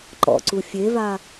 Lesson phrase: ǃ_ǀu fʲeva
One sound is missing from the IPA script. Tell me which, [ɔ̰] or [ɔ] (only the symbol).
ɔ̰